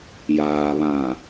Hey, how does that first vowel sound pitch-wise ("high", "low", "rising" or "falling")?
low